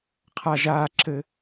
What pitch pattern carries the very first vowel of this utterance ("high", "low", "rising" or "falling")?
high